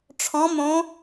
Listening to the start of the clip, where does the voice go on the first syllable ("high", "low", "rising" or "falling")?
rising